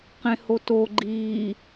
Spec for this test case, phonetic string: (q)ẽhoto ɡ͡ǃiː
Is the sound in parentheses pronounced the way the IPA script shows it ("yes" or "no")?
yes